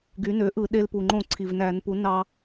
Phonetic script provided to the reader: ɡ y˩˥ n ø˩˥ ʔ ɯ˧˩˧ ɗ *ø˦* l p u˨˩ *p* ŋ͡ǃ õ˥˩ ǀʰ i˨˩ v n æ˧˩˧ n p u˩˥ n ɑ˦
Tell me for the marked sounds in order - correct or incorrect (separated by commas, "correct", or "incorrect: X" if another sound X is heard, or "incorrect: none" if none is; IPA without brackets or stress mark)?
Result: incorrect: e˦, incorrect: none